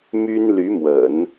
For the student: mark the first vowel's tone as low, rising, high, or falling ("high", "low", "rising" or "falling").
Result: high